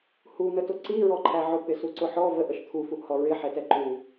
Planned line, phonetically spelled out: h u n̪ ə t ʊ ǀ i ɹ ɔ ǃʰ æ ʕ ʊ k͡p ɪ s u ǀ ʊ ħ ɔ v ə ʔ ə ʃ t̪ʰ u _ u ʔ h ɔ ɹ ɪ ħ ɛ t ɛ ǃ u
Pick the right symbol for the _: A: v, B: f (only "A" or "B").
B